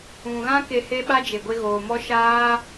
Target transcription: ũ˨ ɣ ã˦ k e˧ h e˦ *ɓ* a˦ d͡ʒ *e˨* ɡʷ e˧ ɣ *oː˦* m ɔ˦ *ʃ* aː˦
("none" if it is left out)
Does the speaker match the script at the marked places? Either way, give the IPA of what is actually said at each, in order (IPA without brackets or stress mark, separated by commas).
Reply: ɓ, e˨, oː˨, ʃ